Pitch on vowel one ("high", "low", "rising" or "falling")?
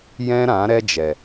high